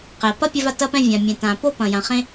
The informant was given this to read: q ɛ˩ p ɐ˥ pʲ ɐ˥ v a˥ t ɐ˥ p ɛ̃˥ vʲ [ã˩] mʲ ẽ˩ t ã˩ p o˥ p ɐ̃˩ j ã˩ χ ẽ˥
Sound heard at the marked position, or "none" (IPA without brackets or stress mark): ã˩